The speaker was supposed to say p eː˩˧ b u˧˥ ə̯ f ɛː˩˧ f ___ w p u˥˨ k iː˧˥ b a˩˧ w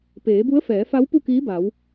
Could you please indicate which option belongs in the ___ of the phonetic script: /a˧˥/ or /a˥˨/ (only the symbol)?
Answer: a˧˥